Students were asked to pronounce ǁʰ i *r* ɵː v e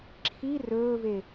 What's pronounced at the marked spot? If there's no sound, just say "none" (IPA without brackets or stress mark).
r